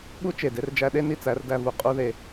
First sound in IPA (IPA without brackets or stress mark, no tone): ɓ